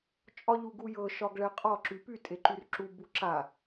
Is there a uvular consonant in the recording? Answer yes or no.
yes